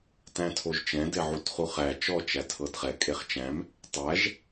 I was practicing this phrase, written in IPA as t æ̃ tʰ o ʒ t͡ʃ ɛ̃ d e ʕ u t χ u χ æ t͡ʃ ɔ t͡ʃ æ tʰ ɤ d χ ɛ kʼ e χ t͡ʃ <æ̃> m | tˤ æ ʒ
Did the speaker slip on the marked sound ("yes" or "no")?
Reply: no